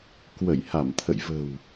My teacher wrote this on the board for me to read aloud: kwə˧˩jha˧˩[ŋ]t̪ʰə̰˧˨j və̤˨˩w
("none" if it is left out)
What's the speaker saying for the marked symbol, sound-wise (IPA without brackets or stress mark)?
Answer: m